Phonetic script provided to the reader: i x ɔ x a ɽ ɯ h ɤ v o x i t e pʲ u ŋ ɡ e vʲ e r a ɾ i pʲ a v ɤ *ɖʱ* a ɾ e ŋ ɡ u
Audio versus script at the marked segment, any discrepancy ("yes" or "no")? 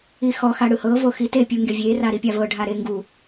no